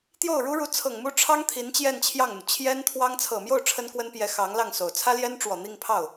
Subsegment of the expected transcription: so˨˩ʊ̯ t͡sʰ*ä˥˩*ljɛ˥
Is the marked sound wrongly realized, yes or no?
yes